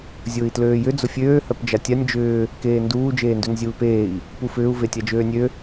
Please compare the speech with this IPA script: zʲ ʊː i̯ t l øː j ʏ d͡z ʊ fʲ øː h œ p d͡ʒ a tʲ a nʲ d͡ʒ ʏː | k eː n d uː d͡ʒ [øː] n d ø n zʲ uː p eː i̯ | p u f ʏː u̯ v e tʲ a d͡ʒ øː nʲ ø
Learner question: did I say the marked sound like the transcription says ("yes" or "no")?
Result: no